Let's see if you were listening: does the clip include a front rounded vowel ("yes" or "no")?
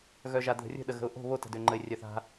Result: yes